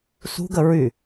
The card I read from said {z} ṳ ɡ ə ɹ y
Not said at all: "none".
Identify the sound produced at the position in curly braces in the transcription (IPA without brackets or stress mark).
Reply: s